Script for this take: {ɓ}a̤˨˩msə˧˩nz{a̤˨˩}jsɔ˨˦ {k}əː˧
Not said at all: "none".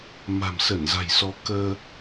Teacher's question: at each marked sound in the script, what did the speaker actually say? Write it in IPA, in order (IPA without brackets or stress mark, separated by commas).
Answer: m, a̤˨˩, k